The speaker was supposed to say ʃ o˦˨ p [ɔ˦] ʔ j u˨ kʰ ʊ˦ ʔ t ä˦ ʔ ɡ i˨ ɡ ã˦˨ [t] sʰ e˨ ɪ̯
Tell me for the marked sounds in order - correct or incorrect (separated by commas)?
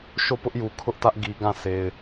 incorrect, incorrect